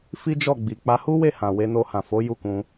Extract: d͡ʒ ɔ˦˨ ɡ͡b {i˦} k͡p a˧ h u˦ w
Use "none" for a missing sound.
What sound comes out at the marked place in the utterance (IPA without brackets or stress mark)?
i˨